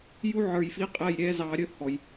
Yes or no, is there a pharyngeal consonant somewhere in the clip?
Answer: yes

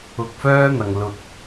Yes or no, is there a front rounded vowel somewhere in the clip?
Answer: yes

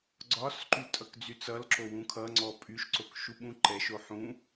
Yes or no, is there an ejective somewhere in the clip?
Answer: yes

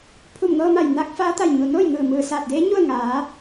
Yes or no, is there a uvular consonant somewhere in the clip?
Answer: no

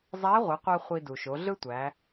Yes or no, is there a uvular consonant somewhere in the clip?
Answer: yes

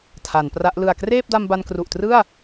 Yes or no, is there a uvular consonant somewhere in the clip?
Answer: no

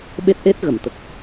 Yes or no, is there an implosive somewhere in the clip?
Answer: yes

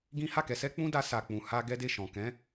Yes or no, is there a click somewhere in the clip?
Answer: no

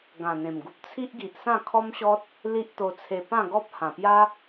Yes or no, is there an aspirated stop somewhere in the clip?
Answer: yes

